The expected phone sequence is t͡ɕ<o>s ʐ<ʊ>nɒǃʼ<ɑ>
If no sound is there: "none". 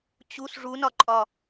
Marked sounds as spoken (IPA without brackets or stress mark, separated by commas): u, u, ɒ